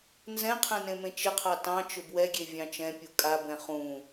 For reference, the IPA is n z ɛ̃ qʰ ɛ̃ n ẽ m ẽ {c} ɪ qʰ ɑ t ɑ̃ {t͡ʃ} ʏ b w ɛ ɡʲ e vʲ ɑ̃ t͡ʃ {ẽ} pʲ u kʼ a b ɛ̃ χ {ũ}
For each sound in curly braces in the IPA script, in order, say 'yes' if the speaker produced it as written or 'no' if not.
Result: no, yes, no, yes

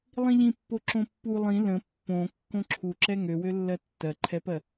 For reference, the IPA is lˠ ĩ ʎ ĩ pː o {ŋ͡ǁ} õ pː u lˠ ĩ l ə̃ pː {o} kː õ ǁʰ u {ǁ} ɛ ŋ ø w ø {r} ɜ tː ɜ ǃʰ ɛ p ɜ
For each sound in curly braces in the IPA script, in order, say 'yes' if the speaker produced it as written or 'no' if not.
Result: no, no, yes, no

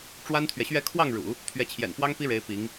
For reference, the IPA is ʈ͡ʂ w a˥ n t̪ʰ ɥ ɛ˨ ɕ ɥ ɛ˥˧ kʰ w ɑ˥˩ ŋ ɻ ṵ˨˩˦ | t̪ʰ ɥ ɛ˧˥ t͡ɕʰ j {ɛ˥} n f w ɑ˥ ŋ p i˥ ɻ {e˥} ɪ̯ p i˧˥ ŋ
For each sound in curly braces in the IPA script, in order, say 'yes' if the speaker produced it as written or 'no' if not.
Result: no, no

